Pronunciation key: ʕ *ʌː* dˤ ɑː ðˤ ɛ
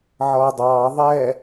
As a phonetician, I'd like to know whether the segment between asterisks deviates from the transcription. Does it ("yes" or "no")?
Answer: no